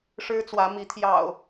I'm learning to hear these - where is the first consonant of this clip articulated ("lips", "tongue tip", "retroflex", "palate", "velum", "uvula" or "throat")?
retroflex